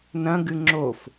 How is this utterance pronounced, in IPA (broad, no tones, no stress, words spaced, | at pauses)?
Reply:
nɐ̃ɡɨ ŋ͡ǁof